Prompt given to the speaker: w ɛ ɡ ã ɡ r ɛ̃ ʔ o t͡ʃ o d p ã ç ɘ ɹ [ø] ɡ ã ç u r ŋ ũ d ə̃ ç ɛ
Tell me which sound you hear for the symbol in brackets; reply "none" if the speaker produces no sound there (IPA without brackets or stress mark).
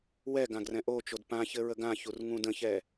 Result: ə